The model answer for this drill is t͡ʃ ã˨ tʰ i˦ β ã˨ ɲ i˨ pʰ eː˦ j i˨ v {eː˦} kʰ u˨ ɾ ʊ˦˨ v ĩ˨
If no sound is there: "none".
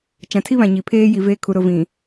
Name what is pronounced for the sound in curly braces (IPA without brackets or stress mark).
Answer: eː˦